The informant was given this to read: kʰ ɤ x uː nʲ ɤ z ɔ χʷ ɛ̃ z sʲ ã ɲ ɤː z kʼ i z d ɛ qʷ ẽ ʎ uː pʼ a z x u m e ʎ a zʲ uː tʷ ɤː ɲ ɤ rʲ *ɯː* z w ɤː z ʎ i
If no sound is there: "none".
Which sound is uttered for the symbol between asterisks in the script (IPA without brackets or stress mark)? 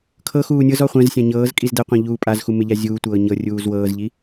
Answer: uː